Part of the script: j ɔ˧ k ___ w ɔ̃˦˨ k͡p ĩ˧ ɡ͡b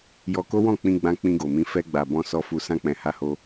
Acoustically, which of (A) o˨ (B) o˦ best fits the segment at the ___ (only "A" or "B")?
B